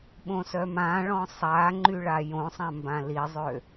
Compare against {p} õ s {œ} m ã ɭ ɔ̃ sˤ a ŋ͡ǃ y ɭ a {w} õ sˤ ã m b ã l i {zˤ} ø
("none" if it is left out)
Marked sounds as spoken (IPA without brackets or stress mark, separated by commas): ɓ, œ, j, zˤ